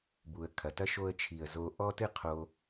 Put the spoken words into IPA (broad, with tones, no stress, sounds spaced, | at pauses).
b u˨ ə̯ kʰ ɐ˨ t ɐ˦ ʃ o˧ ə̯ t͡ʃʰ i˨ ə̯ z o˧ ʔ ɔ˦ t ɨ˦ qʰ o˧